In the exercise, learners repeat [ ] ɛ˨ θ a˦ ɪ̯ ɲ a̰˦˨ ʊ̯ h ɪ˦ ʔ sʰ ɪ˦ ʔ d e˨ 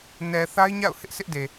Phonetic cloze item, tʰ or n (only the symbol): n